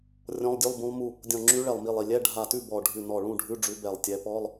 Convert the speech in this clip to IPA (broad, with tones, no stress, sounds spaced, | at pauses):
rʲ ɔ̃˧˥˧ lˠ dʲ ʉ˧˥˧ lˠ b ũ˧˥ lˠ m u˥˨ | dʲ ɔ̃˧˩ ŋ͡ǁ ʉ˧˥ ɭ ɛ˧˩ lˠ m i˧˩ lˠ i˧˩ lʲ ɛ˧˥˧ ɖʱ a˧˩ t ʉ˥˨ b ɔ˧˩ ɖʱ ʉ˧˩ n ɔ˧˩ ɭ ũ˥˨ ɖʱ ʉ˧˥˧ ɖ͡ʐ ʉ˧˥ b ɛ˧˩ lˠ tʲ ɛ˧˥ p ɔ˧˥˧ lˠ